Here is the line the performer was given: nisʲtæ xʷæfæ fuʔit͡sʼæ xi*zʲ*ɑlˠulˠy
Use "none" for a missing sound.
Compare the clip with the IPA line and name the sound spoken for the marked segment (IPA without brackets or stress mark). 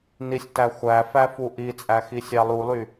sʲ